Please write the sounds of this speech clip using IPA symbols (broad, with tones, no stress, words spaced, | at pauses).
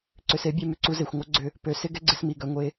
ǀʏ˨se˨˦bʲe˧ mʏ˨ǀu˧ze˨xʷŋʷœ˦ ɡ͡ǀʏ˧ | pø˨sɪ˦ ɡɛ˦ɡ͡ǀɪ˧smi˨ ɡœ˧ ŋʷe˧